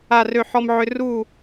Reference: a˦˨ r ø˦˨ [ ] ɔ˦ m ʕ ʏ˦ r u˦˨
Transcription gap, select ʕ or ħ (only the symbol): ħ